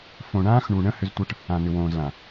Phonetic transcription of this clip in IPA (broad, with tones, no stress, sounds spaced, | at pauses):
f õ˨ ɳ ãː˦ x ɳ u˨ ɳ ə̃˦ h ʏ˦ z tʷ ɤ˦ ʈ | ã˨ n̪ ʏ˨ w õː˨ z l ã˨